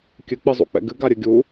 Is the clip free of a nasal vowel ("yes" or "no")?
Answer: yes